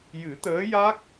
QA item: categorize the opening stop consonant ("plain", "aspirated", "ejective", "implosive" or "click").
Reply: plain